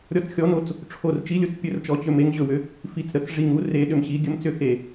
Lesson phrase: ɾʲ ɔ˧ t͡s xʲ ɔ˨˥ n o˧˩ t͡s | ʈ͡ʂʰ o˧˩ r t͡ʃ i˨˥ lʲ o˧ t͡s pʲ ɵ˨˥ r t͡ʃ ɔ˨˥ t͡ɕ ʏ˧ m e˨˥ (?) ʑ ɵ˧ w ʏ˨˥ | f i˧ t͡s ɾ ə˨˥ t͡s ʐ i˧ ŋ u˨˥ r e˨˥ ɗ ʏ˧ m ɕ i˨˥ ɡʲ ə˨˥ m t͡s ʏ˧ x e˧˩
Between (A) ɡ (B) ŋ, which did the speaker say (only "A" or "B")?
B